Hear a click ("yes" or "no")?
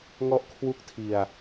no